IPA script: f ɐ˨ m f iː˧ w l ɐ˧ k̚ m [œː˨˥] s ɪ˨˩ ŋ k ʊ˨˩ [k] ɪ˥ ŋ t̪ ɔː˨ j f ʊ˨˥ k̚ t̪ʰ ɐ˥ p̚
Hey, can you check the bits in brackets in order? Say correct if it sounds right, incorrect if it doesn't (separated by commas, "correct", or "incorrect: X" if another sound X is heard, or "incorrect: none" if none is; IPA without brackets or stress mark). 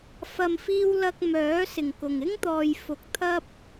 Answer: correct, incorrect: ŋ